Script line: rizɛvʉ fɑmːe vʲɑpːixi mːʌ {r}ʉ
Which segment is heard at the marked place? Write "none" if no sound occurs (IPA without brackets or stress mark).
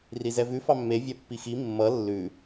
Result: lː